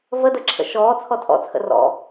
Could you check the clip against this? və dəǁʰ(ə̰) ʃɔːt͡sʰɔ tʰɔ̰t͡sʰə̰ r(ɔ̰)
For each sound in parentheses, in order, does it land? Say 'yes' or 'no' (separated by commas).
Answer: yes, yes